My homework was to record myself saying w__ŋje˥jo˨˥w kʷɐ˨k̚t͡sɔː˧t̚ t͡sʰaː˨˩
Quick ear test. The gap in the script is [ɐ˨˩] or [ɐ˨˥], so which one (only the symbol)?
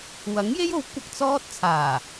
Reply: ɐ˨˥